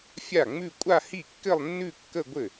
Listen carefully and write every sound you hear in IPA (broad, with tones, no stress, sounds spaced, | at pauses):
fʲ a˥˩ ŋ͡m ʉ˥˧ kʷʼ a˥˧ h i˥˩ kː ɘ˥˧ lˠ nː ʉ˥˧ kː ə˥˧ ɡʷ ɘ˥˩